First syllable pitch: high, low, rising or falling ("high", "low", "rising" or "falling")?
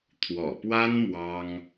low